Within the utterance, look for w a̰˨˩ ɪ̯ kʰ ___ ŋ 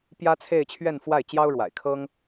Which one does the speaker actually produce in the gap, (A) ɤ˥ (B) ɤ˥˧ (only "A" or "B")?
A